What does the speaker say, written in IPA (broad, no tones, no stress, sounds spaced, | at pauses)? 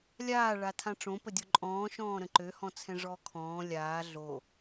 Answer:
lʲ aː ɭ a tʰ ã ʈ͡ʂ õ p ə dʲ o ǃʼ ɔ̃ː ʃ ɔ̃ː ɾ ə̃ ǃ ø h ɔ̃ t͡sʰ ɛ̃ ʐ ɔː kʰ ɔ̃ː lʲ aː ɮ o